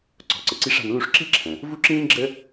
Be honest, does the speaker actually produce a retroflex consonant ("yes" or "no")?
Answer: yes